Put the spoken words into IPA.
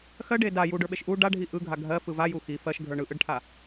x ɜ ɖ e d a j u ɖ ə˞ ɓ e ʃ ʔ u ɖ a ɖʱ i ʔ ɯ ɡʱ a ɡʱ ɜ f ɯ v a j u x i f ɜ ʃ ɡʱ ə˞ ɳ ɯ ʔ ɯ ɖ ʈʰ a

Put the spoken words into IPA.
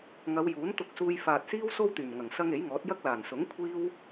ŋ ɐ˨˧ w j uː˨˥ n t̪ ʊ˧ k̚ s uː˧ j f aː˨ t̚ s iː˥ w s o˥ w t̪ yː˨˩ m ŋ ɐ˨˩ ŋ s ɐ˧ ŋ e˨˥ j ŋ ɔː˨˥ t̚ j ɐ˥ k̚ l aː˨˩ n s ʊ˨˥ ŋ kʷʰ iː˥ w

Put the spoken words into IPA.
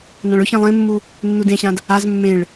n ã ɭ ɵ ç ĩ lˠ ẽ mː u | nː u d ẽ ɕ ã d | a z mː ẽ ɭ

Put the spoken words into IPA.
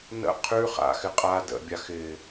n ə̰ qʰ ʉ χ a̰ x ɪ qʼ a d ə̰ bʲ a x ɪ

